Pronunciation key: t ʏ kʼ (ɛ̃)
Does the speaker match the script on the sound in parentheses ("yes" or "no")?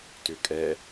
no